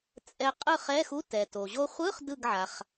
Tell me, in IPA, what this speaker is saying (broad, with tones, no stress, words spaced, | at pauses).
t͡sʼɛ˧ qʼɯ˥˨χɛ˧˥˧xu˧˥˧ tɛ˩to˩ʑo˧χʷɯ˧˥˧χ dɯ˥˨ɡʕa˩χ